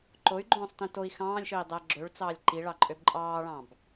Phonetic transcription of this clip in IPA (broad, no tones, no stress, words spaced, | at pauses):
ǃoy̯ɡ͡ǃõːsˤtĩ toi̯ xɑ̃ːlʲʃøi̯dˤæ ɡ͡ǁøɭt͡sɑːlʲ ǃiɭɑǃʼøb ǃʼɑːɭɑ̃b